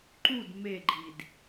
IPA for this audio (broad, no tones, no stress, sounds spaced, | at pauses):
ǃ u d m e ɡ͡ǃ i d